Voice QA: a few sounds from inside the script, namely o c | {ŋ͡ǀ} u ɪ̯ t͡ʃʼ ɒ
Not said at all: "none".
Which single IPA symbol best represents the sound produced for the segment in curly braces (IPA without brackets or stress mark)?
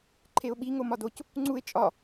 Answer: ŋ͡ǀ